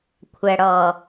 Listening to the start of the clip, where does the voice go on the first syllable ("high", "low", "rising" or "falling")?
low